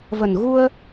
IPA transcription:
və˨˩nɣu˧ə̯

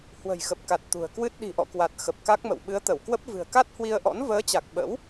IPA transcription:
hwə̤˨˩jxə˨˩p̚ka˨˩t̚ t̪ṳ˨˩ə̯kwɨ˦˥t̚ ɗi̤˨˩ʔɔ̰˧˨kwa˨˩t̚ xə˨˩p̚ka˦˥k̚mə̰˧˨w ɓɨ˨˦ə̯t̪ə˧˩w kwə˦˥p̚ vɨ̤˨˩ə̯ka˦˥t̚hwi˧ə̯ʔɔ̰˧˥n vəː˨˦t͡ɕa˨˩k̚ ɓə̰˧˥w

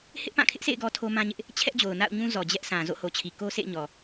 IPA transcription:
hɪ˦ʔpã˦˨kʰɪ˦ʔsḛ˦˨ɪ̯ ɡɔ˦tʰo˦mã˦ɲɪ˦ʔ | t͡ɕʰɛ˦ʔd͡ʑo˨ʊ̯na̰˦˨ʊ̯ ɲũ˦zɔ˨ d͡ʑɛ˦ʔsã˨ zo̰˦˨ho˨t͡ɕʰi˨ ko˦sḛ˦˨ɪ̯ɲɔ˨

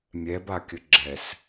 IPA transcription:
mʲɛbakʲə ɡ͡ǁɛs

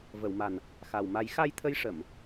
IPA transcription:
və˨˩˨wma˨˩n | xa˨˩w ma˨˩˦j xa˧jt̪ʰə˧jʂə˨˩˨m

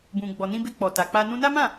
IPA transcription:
bũ˨ ɡ͡bɔ˨nĩ˧be˧ k͡pɔ˨ ta˨k͡pa˧ nũ˧na˦mã˦˨

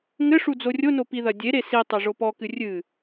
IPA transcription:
ŋɘʂu d͡zorʲono piðɐdʲeɾe sitˤɘ ʐopɔkɨ rʲɨ

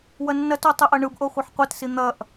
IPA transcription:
wɐnːɐto tˤɘʔɐɳɯbʔo χʷɐħqʷɘtsi n̪ɐʔ

